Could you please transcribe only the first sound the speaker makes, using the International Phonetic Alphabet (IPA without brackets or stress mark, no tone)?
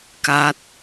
k